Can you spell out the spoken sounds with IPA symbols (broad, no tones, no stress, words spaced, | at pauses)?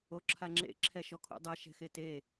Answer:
oǁʰaŋ͡ǁḛ ǁʰɛʃɔkʰṵdˤɛ ʃɛ̤xete